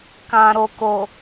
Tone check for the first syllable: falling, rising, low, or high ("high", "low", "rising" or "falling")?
low